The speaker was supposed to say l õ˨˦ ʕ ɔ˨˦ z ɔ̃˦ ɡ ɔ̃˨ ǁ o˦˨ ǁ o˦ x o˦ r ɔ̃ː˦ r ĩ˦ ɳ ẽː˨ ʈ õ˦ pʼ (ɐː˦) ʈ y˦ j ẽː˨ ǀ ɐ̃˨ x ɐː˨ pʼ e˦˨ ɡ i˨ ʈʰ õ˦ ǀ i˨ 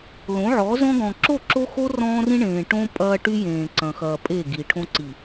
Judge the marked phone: correct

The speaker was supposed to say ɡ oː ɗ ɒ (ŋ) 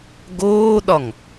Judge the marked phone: correct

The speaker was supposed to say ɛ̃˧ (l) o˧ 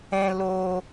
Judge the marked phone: correct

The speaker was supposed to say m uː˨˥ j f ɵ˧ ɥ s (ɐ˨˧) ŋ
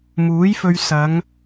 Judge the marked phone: correct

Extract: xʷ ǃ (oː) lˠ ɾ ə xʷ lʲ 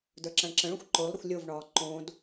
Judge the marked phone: correct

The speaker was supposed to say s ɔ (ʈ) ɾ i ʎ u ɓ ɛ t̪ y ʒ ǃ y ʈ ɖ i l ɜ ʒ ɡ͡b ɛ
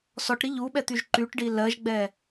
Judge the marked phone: correct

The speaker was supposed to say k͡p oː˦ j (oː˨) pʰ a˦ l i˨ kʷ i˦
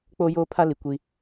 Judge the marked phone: incorrect: oː˦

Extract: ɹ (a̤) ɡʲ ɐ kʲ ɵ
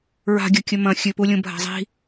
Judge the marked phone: correct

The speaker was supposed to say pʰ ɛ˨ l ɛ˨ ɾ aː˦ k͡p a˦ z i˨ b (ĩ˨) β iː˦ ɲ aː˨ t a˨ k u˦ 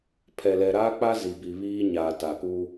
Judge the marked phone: incorrect: i˨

